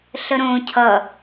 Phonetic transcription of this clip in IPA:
ɬəɾõːcʰʌ

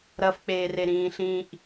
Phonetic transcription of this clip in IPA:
ɾɐfk͡peːre ɾĩːɬĩːʔ

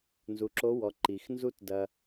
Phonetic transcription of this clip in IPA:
nzu˩˧ǁo˧˥wɔ˩˧ ǃi˩xnzu˥t dɐ˧

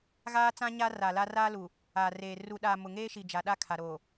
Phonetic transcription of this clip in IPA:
ɣaː˦ t͡sã˦ɲa˦ ra˨la˦ raː˦lu˨ | aː˨reː˨ ru˨ɗaː˨ mʊ˨ŋeː˦ʃi˨d͡ʒa˨ ɗa˦ kʰa˨ɾoː˨

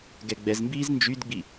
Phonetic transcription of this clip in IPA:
ɡɛɡ͡bɛzmbiːz nd͡ʒydɡ͡bi

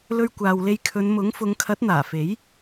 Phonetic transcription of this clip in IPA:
lɵ˧ɥkʷaː˨wle˧jkʰɵ˨˧n mʊ˨˥ŋ fʊ˨˧ŋkʰɐ˨˥t̚n̪aː˨˩ fe˨˥j

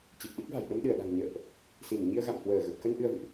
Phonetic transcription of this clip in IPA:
t͡ɕi˨˩p̚ɗɨ˦˥k̚va̤˨˩j ɗə˧mɗɨ˧˩ə̯ɗa̤˨˩ŋ ɲə̰ː˧˨ʔ | si˧˩m ɲi˧ə̯ɣa̰˧˨m hwəː˧˩ ɣə˨˩p̚kə˧n ʔɨ˧ə̯vɨ̰˧˨ʔ

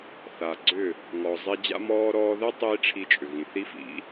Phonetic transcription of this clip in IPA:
θa˨ɡ͡ǀʏ˦˨ | ŋɔ˨ zˤi˧d͡ʑa̰˦mɔː˦ ɾɔː˧ðɛ˦ tˤiː˦ʈ͡ʂʰi˧t͡ʃʼʏ˨ ɣĩ˨θi˦fḭ˨˦

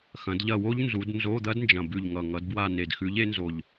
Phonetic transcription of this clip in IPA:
xɐ̃˨˦dʎɐ˦˨wo˦˥ʎ nzu˨˦d nzo˧˥˧d̪ɐ˦˥dnd͡ʒɐ̃˨˩ bʉ˨˩ʎŋʌ˨˩ ŋʌ˨˦dbwa˦˨ ne˨˩dxʉ˨˦ʎe˨˦nzo˨˩ʎ

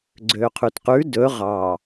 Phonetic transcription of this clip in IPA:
ɡ͡ǀøqʰʉtqʉ dɵ ʁɑ

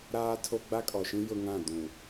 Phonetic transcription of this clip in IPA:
ɾaː˦tʰo˦ ɡ͡ba˦kʼɔ˨ʃĩ˦ jʊ˦ŋã˦˨ dũ˨

